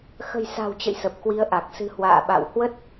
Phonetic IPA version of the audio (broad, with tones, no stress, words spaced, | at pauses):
xə̤˨˩jsa̤˨˩wt͡ɕə̰˧˨j sə˨˩p̚kwi˨˦ə̯ʔa˨˩k̚ sɨ̤˨˩ hwa̰ː˧˨ɓa̰˧˨whwə˦˥t̚